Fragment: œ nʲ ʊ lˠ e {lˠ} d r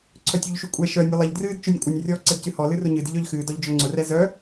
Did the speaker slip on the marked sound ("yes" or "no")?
yes